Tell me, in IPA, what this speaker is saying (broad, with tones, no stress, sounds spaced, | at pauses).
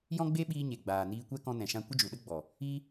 j ɔ̃˦ ɡ͡b e˦ ɓ iː˧ ɲ e˨ ɡ͡b aː˨ n iː˧ kʷ ɛ˦ k ɔ̃˧ n ɛ̃˨ ʃ ã˧ kʷ ə˦ d͡ʒ u˨ ɗ ə˦ ɡ͡b ɔ˨ | i˦